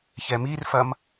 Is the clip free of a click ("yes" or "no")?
yes